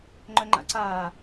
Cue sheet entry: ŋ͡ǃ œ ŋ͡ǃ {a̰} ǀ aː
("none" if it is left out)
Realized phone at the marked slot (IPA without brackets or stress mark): a̰